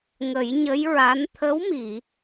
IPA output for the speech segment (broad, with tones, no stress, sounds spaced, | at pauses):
ŋ ə˨˩˦ j ɲ ə˧˥ j ɹ a˧˥ n t̪ʰ ə˧˥ w m i˨˩˨